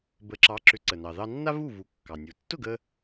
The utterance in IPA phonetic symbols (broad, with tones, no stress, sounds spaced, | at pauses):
b ə˩˥ ǁ ɑ˩˥ ǁ ʏ˩˥ ǀ ə˩ n ɑ˩ ð ɑ˧ nː a˥ v u˥˩ v u˩˥ kː ɑ˩ nʲ u˩ tː ʊ˥˩ ɡ ə˧